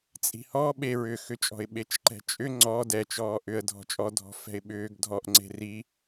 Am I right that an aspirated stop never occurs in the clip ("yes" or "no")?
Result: yes